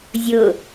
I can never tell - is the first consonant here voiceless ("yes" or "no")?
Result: no